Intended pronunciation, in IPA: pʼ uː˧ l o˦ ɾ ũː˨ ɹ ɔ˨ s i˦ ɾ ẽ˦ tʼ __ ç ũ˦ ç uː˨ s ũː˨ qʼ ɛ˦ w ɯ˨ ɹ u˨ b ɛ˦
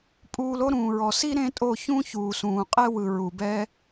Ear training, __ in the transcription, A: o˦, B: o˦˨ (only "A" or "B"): B